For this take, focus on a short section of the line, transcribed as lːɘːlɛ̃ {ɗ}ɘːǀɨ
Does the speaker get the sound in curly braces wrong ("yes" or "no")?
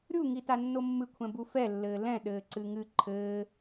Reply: no